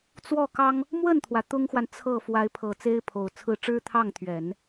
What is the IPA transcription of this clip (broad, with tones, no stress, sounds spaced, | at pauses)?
t͡s w ɔ˥˩ k ɑ˥ ŋ | m w ə˥˩ n t̪ʰ w ä˩ t̪ ʊ˥ ŋ x w a˨ n t͡sʰ ɤ˥˩ f w a˧˥ ɪ̯ pʰ ɤ˨˩ t͡s e˥ ɪ̯ pʰ o˨˩ ʊ̯ t͡sʰ ɹ̩˥˩ ʈ͡ʂ ɻ̩˥ t̪ʰ ɑ˥˩ ŋ t̪ʰ ɥ ɛ˨˩˦ n